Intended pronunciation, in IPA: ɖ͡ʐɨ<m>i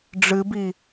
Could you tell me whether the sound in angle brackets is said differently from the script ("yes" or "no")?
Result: yes